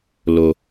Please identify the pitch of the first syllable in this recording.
low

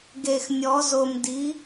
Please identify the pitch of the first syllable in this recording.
low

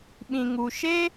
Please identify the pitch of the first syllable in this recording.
low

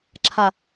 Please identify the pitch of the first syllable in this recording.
low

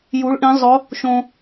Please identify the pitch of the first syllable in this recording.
rising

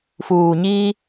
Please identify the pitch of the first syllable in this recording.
low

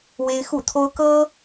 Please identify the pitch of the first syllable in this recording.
high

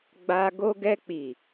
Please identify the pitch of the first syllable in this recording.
high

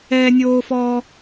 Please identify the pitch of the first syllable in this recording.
high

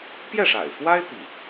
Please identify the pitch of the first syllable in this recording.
falling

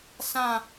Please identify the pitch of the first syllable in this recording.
falling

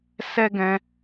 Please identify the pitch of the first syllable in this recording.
high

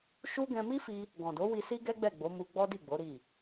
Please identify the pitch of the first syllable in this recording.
high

